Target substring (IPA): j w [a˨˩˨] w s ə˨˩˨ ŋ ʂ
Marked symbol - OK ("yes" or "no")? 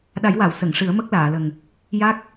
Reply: yes